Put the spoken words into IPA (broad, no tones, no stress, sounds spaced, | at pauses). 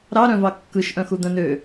ɾ ɑ ɾ œ̃ v ɑ kː ɯ ʃ ʔ œ̃ x u d̪ œ̃ n ø